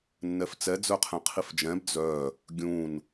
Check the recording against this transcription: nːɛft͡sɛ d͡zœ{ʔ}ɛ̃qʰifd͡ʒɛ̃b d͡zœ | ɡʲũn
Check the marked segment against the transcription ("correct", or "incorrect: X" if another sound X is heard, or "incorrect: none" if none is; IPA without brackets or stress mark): incorrect: qʰ